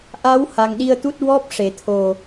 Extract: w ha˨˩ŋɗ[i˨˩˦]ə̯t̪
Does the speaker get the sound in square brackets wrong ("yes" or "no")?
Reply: yes